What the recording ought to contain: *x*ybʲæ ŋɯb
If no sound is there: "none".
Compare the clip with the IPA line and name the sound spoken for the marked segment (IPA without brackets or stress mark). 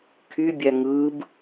kʰ